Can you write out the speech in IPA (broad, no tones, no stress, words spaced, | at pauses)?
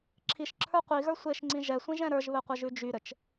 ǁʰiʃǁʰə˞ qʷiɣə˞ sʷeʃŋ͡ǀĩ ʒɛsʷĩʒɛ̃ ɾə˞ʒβɘqʷɘʒʉ d͡ʒyɾɘt͡ʃ